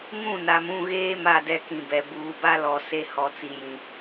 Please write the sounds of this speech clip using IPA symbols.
ŋ ũ˦˨ n a˨ m ũ˦˨ ɣ eː˦ m a˦˨ d ɛ˦ k ĩ˨ b ɛ˨ b uː˨ b a˦ l ɔ˨ s e˦ h ɔ˨ t͡s i˨ j ĩ˨

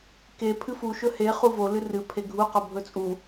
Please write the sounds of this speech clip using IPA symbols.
k e pʰ ɨ f u ʃ ɵ h e χ u v o l ɨ r ɨ pʰ e ɡʱ u q o bʱ ɵ t͡sʼ u

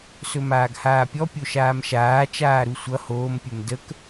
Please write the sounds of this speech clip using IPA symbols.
s ɵ m aː ɡ h aː pʲ ɔ pʲ o ʃ aː m ʃ aː t͡ʃ aː ɾ u sʷ ʌ h oː m pʲ ɵ m d ə k

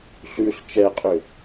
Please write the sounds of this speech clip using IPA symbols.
ɬ ʉ ɬ t͡ʃ ɛ qʼ ʏ

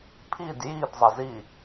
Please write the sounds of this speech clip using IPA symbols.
pʰ i d j i d zˤ ə z i

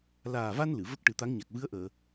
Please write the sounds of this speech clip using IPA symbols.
l aː˨˩ v a˧ n l ɨ˨˩˨ v ə˦˥ k̚ ʈ ɨ˨˩˦ t̪ a˧˥ ŋ ɲ a˨˩ k̚ v ɨ˧˥ ə̯ ʔ əː˨˩˨

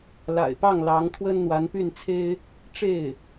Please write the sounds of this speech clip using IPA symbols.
l a̰˨˩ ɪ̯ p ɑ˥˩ ŋ l ɑ˧˥ ŋ t̪ʰ w ə˥ n n̪ w a˧˥ n p y˥˩ n t͡sʰ e˥ ɪ̯ | ʈ͡ʂ e˥˩ ɪ̯

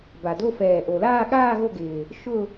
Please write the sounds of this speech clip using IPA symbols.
b a˨˩ d o˥˧ f ɛː˨˩ ʔ o˨˩ l aː˥˧ ɠ aː˥˧ ɣ o˥˧ ɡ ɪː˨˩ | ʃ ʊ˥˧

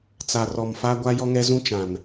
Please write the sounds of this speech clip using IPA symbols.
t͡s a˨ r ɔ˨ m f a˦ ɡʷ a˦ j ɔ˦ ŋ ɛ˦ z ũ˦ t͡ʃ ã˨ n

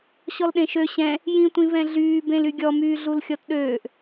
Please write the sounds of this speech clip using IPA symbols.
ɕ ɔ l ɗ ẽ ʃ ø ɕ ɛ̃ | j ĩ tʷ ĩ v ɛ̃ ɮ yː b ẽ l y ɡʲ ɔ m yː ɮ u l xʲ ɔ t ɗ øː ʔ

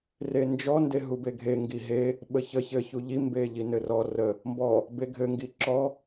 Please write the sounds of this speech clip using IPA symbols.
r e n d͡ʒ ɔ n d e ɦ u b e ɡʱ e ŋ ɡ i ɦ e | ɓ ə ç ə ç ɘ ç u ʎ i m b e ʎ i n ɘ r ɔ r ə | m b ɔ | b e ɡʱ ɘ ŋ ɡ i ǁ ɔ

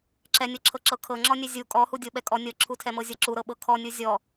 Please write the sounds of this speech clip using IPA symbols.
ǁ ɛ nʲ ɤ ǁʰ ɤ ǁ ɤ kʰ ɤ ŋ͡ǁ ɔ nʲ ɛ zʲ u kʼ ɔ h u dʲ ɤ ɓ ɛ kʼ ɔ nʲ ɤ ǁʰ u tʰ ɛ m ɤ zʲ ɤ ǁ u ɾ ɤ ɓ ɤ kʰ ɔ nʲ u zʲ ɔ

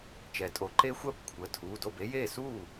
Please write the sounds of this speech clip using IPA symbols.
t͡ʃ ɛ˩˥ tʼ o˩˥ ǃ e˦˥ xʷ ɜ˥˩ b kʷʰ ə˩˧˩ tʰ uː˩˧˩ d o˥˩ b e˦˥ j eː˥˩ s uː˥˩

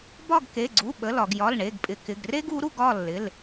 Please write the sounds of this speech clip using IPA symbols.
b ɒ˦˨ ɡ k e˩˧˩ ɡ͡ǀ u˩˧˩ ɓ ə˩˧˩ l ɒ˩ ɡ j ɒ˩˧˩ l ɳ e˩˧˩ ɡ pʼ ɪ˩ k ɪ˩˧˩ ɡ r e˦ ɡ u˩˧ ɾ u˦˨ ɡ ɒ˦˨ lː ɪ˩˧˩ l

